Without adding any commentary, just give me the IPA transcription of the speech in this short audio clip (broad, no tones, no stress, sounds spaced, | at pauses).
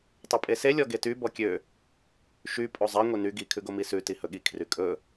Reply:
tˤ ʉ pʼ e s e lʲ ɔ ɡ e t y b ɔ kʲ ø | ʃ y pʼ o zˤ ɛ ŋʷ e n y ɡ i kʰ ʉ ɡ o m i s ʉ t i h ɵ ɠ i kʰ r y kʼ ɵ